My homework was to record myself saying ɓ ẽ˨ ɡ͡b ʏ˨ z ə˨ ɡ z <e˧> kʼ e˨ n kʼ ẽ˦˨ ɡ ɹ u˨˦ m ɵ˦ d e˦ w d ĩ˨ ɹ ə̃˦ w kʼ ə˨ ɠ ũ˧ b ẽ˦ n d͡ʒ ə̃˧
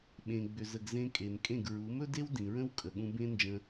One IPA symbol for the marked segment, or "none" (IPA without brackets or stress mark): ẽ˧